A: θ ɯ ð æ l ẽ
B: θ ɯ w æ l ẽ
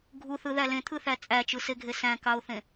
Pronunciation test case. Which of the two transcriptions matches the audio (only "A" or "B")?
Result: A